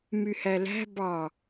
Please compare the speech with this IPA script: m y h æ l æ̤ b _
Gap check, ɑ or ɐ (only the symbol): ɑ